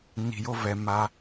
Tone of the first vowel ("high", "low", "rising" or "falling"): low